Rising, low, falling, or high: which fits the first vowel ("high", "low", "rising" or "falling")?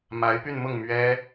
rising